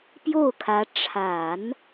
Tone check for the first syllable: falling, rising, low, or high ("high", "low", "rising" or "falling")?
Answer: falling